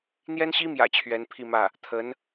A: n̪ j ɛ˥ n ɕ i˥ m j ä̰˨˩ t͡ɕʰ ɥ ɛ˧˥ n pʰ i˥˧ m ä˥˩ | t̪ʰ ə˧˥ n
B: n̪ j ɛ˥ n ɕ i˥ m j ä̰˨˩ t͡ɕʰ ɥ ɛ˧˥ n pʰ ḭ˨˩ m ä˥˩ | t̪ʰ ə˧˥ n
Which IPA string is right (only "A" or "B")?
A